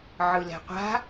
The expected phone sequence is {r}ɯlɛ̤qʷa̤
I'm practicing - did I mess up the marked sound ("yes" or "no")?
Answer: yes